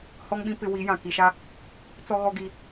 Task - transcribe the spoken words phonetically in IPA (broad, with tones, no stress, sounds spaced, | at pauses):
h ɔ˦ ŋ ɓ ĩ˦ p ɪ˦ w i˨˦ j ã˨ k i˨ ʃ a˦ | t͡s ɔ˦ ɣ ɔ˦ ɡ i˦